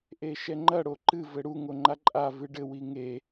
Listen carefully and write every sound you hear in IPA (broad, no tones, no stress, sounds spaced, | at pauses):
ʔ e ʃ ɛ ŋ͡ǃ ɐ ɽ o ǃ ɨ v ɘ ɽ u ŋ o ŋ͡ǃ a ǃʼ a v ɨ ɖ ɘ w i ŋ e